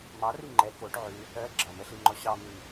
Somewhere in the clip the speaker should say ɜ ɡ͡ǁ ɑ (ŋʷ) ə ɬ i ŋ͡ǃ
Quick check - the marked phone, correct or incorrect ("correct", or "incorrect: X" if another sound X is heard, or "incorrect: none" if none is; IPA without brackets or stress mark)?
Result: incorrect: m